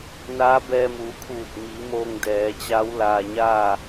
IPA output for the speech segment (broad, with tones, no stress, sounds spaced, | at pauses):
n aː˧˥ b ɛː˧ m uː˩˧ kʰ uː˧˩ t̚ m i˩˧ m oː˧ ŋ d ɛː˩˧ t͡ɕ a˧˥ w l aː˧ ɲ aː˥˨